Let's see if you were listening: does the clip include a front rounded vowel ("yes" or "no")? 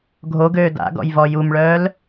yes